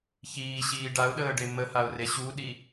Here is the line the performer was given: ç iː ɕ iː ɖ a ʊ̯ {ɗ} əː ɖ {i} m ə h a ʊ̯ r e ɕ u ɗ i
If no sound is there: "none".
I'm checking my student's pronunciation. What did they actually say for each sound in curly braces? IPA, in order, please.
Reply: ɗ, e

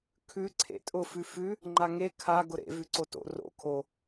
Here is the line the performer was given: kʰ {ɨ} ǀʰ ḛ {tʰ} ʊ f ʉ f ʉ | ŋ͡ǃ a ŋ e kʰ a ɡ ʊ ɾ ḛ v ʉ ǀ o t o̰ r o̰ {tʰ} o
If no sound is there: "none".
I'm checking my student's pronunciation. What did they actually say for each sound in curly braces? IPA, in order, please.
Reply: ʉ, tʼ, kʰ

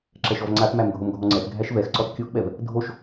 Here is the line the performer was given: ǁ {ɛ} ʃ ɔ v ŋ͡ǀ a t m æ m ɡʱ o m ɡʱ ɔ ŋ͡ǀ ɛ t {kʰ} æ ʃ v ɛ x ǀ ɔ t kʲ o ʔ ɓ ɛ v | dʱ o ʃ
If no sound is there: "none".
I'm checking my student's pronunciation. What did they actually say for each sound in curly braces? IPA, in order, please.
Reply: ɛ, ɡʱ

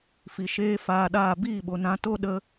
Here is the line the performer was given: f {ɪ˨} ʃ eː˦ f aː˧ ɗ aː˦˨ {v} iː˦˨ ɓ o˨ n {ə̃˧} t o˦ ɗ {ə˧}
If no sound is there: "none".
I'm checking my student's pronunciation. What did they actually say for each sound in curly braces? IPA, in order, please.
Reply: i˨, b, ã˧, ə˧

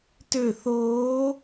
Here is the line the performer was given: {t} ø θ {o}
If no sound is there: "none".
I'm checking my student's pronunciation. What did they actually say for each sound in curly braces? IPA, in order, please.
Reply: t, oː

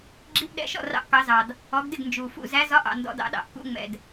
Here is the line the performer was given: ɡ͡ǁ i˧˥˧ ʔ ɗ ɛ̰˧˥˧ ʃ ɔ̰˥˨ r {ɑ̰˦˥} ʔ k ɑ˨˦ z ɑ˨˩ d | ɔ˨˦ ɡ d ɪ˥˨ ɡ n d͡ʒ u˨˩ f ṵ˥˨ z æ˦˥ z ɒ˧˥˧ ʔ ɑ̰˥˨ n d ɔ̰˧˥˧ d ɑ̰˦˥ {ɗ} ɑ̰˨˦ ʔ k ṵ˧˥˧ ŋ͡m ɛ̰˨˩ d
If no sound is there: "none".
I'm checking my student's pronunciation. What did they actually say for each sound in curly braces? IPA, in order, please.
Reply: ɑ̰˦˥, ɗ

